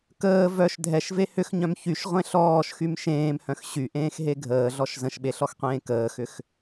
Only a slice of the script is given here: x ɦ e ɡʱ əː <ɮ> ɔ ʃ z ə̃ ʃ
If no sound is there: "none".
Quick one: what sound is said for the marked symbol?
ɮ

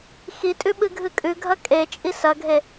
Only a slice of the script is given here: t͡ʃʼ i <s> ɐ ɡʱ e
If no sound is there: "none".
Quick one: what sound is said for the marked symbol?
s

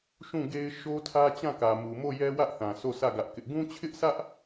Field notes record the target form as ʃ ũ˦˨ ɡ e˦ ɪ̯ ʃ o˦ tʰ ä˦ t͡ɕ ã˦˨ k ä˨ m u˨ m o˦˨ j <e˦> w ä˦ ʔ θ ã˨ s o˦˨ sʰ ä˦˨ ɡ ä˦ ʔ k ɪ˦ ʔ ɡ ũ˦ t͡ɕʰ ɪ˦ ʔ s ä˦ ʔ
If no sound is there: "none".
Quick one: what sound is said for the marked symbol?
ɛ˦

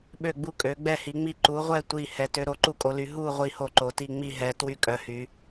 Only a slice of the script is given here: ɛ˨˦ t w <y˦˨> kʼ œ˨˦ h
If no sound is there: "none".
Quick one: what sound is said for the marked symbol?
y˦˨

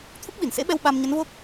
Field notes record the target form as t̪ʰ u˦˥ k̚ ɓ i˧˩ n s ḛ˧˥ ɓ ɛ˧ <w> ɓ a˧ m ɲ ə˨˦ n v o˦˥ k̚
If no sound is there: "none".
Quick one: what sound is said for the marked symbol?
w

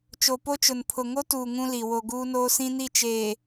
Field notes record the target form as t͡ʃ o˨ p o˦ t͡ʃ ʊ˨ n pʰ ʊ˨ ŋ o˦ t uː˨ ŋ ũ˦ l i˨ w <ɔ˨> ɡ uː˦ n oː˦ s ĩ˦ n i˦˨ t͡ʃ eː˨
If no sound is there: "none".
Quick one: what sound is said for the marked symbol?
o˨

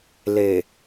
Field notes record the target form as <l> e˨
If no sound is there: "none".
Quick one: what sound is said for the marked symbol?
l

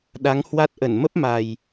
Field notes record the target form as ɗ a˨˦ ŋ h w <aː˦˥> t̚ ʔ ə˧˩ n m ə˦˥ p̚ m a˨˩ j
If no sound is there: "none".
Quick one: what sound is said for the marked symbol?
a˦˥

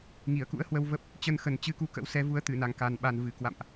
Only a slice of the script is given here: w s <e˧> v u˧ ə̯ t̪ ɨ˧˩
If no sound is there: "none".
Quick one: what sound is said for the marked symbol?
ɛ˧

